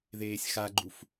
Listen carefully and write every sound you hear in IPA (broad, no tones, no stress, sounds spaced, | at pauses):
ð eː sʲ x a ɡ͡ǃ u f